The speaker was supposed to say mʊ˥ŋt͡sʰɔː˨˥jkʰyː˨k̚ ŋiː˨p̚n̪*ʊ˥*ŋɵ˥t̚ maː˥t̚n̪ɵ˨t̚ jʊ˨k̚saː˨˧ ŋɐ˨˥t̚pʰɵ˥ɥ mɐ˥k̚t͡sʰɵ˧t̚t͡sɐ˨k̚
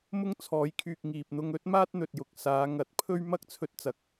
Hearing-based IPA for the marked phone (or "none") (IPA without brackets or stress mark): ʊ˧